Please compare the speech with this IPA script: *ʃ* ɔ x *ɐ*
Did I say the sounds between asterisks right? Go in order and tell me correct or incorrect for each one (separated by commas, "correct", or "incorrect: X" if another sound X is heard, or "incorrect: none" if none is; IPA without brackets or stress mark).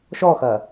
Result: correct, correct